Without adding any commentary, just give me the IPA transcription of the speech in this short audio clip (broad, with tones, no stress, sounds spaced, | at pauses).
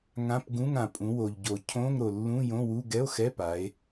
ŋ ã˧˥˧ p ɡ ũ˧˥˧ ŋ ã˩ pʼ ũ˩˧ w o˩ ʎ ɟ o˩ cʰ õ˧˥˧ ŋ ɾ o˩ lː ũ˧˥˧ j õ˧˥˧ w u˧˥˧ ɡ ɛ˧˥˧ o̯ x ɛ˧˥˧ p a˩˧ e̯